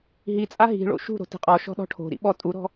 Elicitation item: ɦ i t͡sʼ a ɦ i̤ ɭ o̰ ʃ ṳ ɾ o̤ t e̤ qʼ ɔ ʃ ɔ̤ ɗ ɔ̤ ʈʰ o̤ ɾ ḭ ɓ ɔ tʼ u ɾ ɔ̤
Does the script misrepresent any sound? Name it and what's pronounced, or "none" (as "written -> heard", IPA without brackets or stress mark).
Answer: none